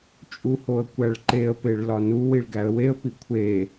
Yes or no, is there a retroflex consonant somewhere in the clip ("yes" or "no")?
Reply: yes